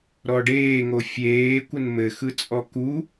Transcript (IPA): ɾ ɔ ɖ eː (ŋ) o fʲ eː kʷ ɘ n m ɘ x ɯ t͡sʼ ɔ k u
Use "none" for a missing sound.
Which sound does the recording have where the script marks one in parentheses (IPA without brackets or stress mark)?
ŋ